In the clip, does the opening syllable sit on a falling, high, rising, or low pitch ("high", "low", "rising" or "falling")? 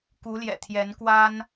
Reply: rising